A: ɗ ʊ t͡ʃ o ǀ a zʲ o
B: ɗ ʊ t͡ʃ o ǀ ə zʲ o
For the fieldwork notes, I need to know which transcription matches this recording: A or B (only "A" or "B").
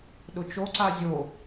A